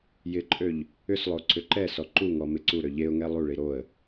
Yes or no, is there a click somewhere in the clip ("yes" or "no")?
yes